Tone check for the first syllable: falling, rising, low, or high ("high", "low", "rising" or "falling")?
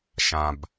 low